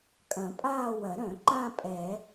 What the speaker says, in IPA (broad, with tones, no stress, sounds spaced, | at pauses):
kʼ ɐ̃˨˩˦ pʼ aː˥˧ w ɐ˨˩˦ ɾ œ̃˨˩˦ ǃ ã˥˧ pʼ ɛ˨˩˦